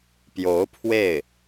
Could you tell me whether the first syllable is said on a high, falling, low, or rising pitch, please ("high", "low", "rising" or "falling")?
rising